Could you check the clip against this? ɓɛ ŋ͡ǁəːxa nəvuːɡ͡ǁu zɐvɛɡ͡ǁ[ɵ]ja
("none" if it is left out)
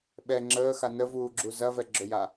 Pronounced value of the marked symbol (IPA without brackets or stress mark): ɵ